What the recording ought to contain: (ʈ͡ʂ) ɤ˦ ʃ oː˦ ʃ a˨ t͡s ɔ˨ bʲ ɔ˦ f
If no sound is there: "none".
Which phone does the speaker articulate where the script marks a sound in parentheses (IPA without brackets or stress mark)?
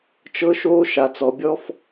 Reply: t͡ʃ